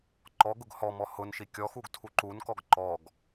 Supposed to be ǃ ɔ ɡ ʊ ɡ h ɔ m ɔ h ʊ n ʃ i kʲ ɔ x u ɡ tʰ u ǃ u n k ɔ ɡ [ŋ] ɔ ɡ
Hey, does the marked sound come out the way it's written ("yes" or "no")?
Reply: no